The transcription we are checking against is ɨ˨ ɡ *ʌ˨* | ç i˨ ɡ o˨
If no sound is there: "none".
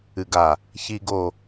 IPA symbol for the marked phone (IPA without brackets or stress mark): a˨